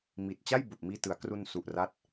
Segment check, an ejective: absent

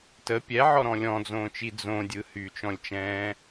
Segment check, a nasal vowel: present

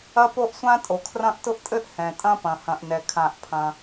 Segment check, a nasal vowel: present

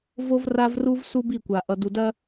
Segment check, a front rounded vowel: absent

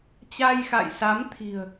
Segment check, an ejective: absent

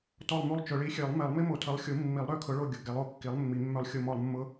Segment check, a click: absent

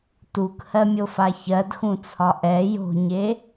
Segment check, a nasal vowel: present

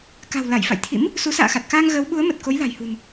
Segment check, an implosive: present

